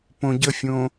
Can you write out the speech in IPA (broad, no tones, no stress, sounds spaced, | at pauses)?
p õ ɟ ə fʲ õ